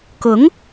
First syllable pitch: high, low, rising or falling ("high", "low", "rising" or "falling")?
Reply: rising